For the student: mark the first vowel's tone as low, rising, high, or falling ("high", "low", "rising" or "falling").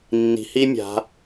low